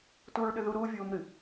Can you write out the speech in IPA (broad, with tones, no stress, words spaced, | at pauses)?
tu˦ɹɗʏ˦ðu˦ ɾuː˦ vʲuː˦mɾɨ˨